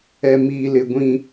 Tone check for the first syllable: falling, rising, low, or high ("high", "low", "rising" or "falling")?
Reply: high